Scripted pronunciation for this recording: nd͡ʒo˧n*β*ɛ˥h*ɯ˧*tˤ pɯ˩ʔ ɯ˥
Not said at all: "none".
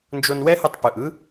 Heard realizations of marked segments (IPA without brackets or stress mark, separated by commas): w, ɯ˧